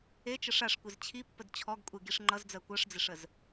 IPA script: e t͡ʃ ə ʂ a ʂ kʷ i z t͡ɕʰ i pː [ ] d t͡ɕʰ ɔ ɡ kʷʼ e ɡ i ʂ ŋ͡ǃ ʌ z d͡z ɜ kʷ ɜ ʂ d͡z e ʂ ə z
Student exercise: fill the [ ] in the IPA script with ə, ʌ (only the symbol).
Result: ə